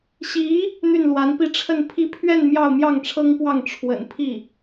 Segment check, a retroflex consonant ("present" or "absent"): present